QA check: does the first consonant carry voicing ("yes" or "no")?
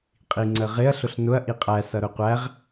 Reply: no